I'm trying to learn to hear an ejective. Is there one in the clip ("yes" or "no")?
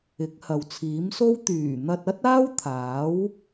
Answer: no